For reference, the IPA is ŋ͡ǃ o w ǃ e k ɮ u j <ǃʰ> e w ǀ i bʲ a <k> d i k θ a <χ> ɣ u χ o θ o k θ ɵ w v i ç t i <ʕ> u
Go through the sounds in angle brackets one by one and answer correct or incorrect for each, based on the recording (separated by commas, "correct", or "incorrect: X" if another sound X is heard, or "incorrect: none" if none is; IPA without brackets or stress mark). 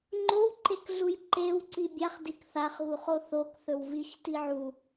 incorrect: ǃ, incorrect: χ, correct, correct